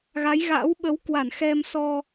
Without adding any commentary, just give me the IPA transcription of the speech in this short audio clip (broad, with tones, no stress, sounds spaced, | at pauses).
ɣ a˨˦ j ɣ a̰ː˧˥ w ɓ ə˨˦ w k w a˧˩ n x ɛ˧ m s ɔ˧